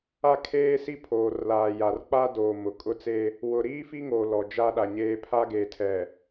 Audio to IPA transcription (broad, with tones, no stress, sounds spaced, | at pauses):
a˦ kʰ eː˦ s i˦ pʰ oː˨ r l aː˨ j a˨ r k͡p a˦ d oː˨ m ʊ˨ kʼ ʊ˦ t͡s e˦ | w ʊ˨ ɾ iː˦ f i˦ ŋ o˨ l ɔ˨ d͡ʒ a˦ ɗ a˨ ɲ eː˦ pʰ a˦ ɡ e˨ tʰ ɛ˨